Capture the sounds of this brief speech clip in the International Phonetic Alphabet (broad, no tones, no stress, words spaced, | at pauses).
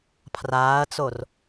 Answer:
pʰraːɐ̯t͡sor